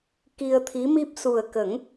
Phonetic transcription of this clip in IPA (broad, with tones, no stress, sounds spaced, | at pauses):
k i˧ ə̯ t̪ʰ i˧˥ m i˦˥ p̚ s u˨˩ ə̯ k ə˨˩˦ ŋ